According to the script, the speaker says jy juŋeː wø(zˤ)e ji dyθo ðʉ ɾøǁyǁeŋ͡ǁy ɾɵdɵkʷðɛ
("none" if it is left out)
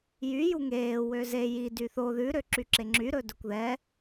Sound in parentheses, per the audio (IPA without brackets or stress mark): z